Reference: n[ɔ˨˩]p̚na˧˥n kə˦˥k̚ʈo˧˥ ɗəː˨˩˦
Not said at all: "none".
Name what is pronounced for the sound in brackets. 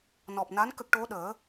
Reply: ɔ˨˩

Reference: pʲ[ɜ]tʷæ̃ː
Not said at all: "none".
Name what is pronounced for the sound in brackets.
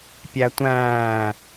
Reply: æ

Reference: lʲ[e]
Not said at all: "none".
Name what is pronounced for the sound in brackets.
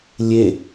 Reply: e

